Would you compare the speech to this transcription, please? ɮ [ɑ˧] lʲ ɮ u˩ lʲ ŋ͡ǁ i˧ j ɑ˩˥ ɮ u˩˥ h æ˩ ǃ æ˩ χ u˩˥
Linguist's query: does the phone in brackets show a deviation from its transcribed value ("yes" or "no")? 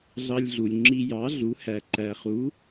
no